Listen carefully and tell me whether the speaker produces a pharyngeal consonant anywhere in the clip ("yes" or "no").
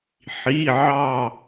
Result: yes